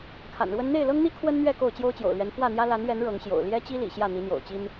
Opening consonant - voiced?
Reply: no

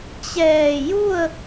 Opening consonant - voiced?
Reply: no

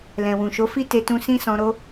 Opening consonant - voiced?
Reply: yes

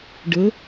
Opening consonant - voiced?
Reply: yes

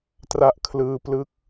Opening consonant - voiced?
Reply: no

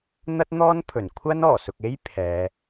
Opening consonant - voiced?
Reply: yes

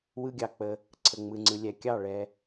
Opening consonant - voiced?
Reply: yes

